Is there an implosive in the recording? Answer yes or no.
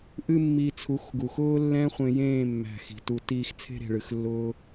no